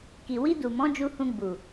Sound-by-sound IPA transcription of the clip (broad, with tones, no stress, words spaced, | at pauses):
ki˨wi˧du˨mɔ̃˨˦ d͡ʒu˧hũ˧ɡ͡bu˨